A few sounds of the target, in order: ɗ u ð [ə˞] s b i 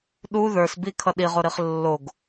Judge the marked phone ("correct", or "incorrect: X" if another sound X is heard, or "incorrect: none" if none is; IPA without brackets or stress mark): correct